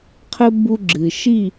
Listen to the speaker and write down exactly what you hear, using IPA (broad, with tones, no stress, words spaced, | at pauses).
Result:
qʰɘ˦ bu˦ɡ͡ǁɨ˨ ʃi˦˨